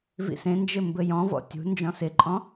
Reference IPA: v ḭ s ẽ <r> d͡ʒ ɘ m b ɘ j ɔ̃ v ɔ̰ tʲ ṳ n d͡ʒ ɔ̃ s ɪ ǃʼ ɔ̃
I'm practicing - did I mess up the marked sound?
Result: yes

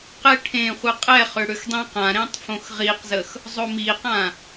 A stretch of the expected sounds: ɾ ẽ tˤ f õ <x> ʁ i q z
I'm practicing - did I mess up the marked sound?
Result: no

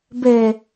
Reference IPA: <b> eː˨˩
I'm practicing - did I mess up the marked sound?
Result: no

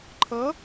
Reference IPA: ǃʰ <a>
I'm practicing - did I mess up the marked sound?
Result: yes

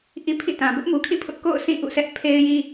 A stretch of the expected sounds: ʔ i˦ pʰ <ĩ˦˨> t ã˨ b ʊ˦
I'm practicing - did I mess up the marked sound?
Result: no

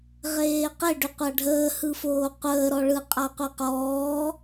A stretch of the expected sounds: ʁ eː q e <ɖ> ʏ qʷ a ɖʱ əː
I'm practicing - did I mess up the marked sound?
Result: no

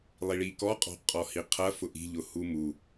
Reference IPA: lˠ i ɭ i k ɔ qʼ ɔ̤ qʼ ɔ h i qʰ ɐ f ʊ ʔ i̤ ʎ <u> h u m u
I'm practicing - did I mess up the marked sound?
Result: yes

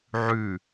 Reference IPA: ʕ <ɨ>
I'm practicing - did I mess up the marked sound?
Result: yes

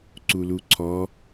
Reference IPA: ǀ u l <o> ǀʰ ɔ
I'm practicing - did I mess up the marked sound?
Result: yes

